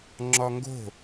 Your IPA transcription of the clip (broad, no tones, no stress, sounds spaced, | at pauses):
ŋ͡ǁ ɒ ŋ ɡ o̤